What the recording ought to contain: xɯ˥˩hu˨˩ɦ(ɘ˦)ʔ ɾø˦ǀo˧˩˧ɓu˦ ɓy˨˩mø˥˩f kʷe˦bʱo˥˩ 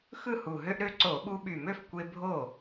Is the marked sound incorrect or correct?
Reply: incorrect